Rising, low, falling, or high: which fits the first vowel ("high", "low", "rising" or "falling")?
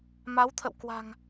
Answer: rising